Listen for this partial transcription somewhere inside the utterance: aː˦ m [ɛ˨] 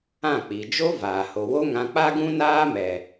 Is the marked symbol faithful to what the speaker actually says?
yes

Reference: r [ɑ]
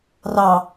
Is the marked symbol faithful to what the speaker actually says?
yes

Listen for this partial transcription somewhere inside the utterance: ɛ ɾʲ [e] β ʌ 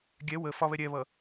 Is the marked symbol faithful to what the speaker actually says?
no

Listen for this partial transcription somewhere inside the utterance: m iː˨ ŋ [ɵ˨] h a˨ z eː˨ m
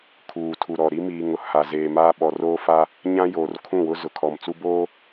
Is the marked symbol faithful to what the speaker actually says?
no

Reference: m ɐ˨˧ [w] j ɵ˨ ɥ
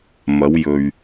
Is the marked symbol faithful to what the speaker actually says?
yes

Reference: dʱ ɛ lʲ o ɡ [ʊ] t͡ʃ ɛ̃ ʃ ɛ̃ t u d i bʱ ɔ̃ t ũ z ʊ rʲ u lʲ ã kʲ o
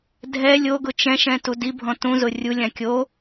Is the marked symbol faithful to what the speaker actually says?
yes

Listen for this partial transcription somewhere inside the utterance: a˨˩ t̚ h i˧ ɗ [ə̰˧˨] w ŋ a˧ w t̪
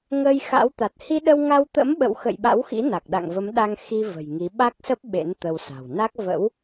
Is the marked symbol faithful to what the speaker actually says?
no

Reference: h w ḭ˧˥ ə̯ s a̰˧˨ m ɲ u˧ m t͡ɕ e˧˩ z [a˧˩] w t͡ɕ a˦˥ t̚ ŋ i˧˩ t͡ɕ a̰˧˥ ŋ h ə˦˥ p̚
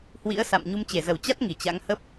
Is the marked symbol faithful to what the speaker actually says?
no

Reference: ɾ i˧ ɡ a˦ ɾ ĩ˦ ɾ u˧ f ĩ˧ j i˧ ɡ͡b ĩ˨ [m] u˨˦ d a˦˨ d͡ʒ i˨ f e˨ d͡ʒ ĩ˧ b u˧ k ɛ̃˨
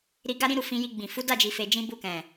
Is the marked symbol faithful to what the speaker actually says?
no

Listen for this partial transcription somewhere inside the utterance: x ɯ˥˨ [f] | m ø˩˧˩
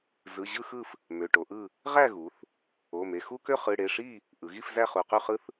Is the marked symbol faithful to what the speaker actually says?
yes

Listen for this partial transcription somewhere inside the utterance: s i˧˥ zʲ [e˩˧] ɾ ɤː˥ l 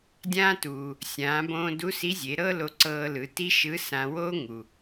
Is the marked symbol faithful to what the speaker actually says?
yes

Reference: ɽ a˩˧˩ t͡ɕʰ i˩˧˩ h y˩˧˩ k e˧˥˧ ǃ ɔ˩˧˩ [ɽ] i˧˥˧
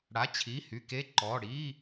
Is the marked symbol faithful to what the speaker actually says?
yes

